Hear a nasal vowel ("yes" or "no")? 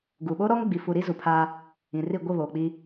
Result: yes